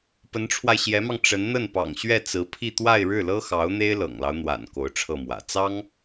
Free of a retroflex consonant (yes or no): no